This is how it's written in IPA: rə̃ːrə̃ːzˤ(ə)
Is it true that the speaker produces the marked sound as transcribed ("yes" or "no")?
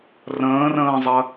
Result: yes